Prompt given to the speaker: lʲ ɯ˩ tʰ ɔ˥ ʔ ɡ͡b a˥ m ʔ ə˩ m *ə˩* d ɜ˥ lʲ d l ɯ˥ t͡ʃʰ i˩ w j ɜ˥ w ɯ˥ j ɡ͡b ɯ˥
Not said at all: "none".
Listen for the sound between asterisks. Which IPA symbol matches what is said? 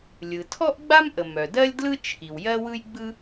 œ˩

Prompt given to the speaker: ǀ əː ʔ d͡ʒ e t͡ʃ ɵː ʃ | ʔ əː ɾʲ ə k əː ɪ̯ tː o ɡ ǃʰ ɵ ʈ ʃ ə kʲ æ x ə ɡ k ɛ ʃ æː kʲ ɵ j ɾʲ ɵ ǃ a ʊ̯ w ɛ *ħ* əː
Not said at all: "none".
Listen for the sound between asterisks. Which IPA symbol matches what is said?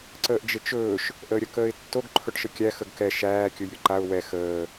x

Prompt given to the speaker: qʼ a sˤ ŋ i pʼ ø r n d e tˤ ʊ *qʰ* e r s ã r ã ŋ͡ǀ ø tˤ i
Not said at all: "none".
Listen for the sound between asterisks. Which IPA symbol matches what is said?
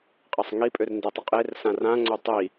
qʼ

